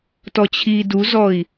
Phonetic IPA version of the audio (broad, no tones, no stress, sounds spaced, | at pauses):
t ɔ t͡ɕʰ iː d u z ɔ i̯